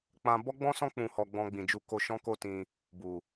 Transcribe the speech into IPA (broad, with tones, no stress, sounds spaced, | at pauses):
k͡p ã˧ b ɔ˦ ɡ͡b ɔ̃˦ s ɔ̃˦ k͡p ũ˧ h ɔ˧ ɡ͡b ɔ̃˧ ɡ͡b ĩ˨ d͡ʒ u˧ k o˧ ʃ ɔ̃˦ k o˦ t ĩ˧ | b u˨